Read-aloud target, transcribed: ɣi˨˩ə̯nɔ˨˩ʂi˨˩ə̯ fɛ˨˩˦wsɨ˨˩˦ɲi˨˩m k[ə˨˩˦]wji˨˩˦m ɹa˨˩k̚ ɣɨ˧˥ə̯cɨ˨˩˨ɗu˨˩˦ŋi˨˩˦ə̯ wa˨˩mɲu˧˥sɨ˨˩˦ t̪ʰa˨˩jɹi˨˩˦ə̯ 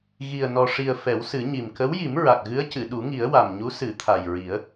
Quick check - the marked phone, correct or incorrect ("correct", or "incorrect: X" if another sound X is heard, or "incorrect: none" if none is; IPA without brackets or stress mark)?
incorrect: ə˧˥